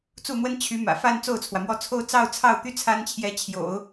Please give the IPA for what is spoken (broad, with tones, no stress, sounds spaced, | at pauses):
t͡s u˥˩ n̪ w ə˥ n t͡ɕʰ y˧˥ m ä̰˨˩ f a˥˧ n t͡s o˥˩ ʊ̯ t͡sʰ w ä˩ m w ɔ˥˧ t͡sʰ o˥˧ ʊ̯ t͡s ɑ˥˧ ʊ̯ t͡sʰ ɑ˥˩ ʊ̯ t̪ y˥ t͡sʰ a˥ n t͡ɕʰ j ɛ˧˥ t͡ɕʰ j o̰˨˩˦ ʊ̯